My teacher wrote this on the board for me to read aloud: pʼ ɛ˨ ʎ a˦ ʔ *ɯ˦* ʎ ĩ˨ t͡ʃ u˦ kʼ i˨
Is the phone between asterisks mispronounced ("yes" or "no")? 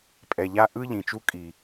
no